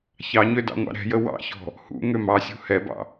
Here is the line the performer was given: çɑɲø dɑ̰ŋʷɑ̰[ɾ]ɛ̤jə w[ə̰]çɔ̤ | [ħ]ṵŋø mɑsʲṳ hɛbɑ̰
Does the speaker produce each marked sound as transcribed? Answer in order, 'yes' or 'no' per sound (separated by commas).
yes, no, no